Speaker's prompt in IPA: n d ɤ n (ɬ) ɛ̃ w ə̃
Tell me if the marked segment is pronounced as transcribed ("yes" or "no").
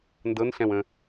yes